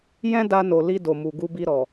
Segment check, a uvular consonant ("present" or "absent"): absent